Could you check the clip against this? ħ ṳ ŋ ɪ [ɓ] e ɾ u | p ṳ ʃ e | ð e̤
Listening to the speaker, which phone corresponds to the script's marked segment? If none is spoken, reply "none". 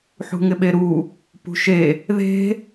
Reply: ɓ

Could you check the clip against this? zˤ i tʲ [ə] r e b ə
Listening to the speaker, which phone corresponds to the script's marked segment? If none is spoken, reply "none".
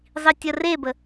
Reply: ə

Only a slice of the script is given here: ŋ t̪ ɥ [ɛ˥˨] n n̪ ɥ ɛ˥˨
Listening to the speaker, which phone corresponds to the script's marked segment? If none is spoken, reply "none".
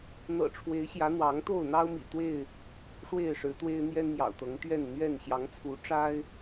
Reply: ɛ˥˨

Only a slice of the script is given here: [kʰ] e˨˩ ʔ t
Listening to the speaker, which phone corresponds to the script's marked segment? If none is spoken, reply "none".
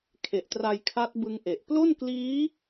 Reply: kʰ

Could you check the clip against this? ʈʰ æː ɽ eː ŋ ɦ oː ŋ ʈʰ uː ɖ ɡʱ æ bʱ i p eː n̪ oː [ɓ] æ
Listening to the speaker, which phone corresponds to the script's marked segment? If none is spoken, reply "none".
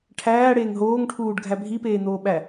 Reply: ɓ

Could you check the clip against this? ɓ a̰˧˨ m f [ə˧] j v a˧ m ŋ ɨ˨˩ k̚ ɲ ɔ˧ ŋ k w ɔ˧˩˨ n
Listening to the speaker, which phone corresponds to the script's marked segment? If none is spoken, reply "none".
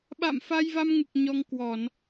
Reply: a˧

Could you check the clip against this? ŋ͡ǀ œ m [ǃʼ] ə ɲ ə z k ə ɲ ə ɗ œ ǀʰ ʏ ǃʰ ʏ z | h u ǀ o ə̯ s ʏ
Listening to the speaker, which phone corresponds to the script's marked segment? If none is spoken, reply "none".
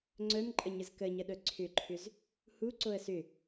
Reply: ǃʼ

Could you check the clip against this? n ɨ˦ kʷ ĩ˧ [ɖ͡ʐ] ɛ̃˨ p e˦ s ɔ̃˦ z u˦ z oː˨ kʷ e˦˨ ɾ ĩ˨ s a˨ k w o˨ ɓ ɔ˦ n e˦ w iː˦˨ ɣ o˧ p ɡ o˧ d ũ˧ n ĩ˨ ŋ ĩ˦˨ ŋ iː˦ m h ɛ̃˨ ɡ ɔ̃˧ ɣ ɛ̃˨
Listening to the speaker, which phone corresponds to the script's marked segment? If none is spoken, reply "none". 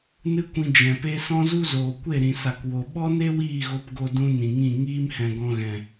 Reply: d͡ʒ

